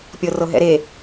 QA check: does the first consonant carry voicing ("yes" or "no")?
no